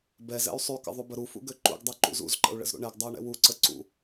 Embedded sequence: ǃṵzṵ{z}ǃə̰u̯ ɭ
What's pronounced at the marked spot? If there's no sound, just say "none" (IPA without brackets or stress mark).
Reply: z